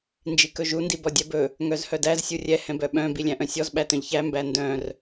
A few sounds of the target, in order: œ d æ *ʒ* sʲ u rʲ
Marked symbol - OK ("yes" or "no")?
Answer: no